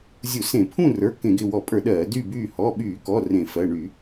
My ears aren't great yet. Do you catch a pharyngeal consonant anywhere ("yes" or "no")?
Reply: no